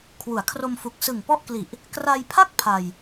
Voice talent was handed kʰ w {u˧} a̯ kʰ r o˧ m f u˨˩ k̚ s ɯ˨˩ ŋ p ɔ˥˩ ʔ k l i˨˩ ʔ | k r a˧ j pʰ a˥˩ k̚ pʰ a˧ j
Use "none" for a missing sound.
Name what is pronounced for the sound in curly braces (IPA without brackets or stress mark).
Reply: u˩˦